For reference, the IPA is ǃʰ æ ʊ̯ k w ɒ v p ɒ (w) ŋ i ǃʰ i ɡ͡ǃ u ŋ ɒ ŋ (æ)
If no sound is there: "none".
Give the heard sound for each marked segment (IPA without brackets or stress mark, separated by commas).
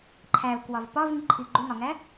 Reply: v, æ